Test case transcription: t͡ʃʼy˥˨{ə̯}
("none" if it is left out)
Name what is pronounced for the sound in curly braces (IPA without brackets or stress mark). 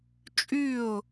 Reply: ʊ̯